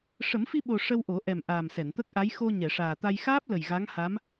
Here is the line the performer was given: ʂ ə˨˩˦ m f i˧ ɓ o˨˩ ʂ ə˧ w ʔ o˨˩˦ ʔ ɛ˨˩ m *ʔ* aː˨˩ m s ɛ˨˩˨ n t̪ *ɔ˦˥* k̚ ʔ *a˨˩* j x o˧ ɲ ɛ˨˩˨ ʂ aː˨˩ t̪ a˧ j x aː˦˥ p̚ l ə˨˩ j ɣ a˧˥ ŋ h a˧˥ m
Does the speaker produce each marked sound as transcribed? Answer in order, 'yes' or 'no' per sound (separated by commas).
yes, no, no